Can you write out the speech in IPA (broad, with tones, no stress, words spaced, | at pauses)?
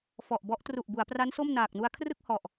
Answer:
fɔ˨˩ʔbɔ˦˥ʔ tru˨˩ʔbu˩˦a̯pra˦˥n so˥˩mnaː˨˩k̚nu˧a̯ kʰrɯ˥˩k̚hɔ˨˩ʔ